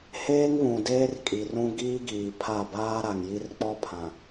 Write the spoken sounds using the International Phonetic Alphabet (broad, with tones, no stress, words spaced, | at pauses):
heː˦ŋβũ˨ deː˦rkʼi˨rũ˦ ɡiː˦ɡiː˨ pʰa˦˨ baː˦ɾa˨ŋji˦r k͡pɔ˦pʰã˨